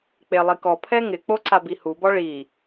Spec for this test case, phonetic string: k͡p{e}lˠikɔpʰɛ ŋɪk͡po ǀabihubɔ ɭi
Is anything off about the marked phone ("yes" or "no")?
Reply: no